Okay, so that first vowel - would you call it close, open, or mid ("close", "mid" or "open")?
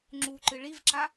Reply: close